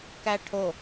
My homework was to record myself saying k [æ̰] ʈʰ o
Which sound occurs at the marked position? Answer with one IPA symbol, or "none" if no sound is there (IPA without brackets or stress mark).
æ